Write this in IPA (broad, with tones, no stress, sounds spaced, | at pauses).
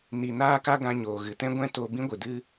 n i˨ n aː˦ k a˦ ɡ ã˧ ɲ oː˨ ɣ ɨ˨ t ɛ̃˦ ɡʷ ɛ̃˦ t o˧ b ĩ˦ ɡʷ ɨ˨ d ɨ˦